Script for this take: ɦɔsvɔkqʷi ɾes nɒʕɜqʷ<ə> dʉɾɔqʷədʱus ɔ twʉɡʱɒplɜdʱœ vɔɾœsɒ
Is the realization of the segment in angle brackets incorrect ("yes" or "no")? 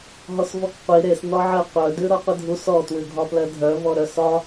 yes